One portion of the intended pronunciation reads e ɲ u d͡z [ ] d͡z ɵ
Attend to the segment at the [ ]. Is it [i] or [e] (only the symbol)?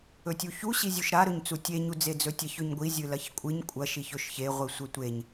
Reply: e